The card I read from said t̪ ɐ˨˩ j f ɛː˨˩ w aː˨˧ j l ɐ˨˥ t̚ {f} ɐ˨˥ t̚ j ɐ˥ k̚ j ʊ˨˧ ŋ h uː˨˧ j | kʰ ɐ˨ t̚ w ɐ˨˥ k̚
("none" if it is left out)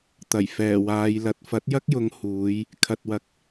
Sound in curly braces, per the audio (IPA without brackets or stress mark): f